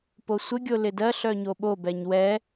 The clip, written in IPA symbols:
p o sʷ ɪ ɡʲ o l ɪ d ɜ ɬ œ ɲ o ɓ o b ɛ ɲ w ɛ

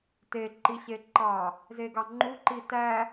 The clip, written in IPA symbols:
t e ǃ i ɕ e ǃ ɑ | z e ɡ ɑ ŋ͡ǃ u ǃ i t æ

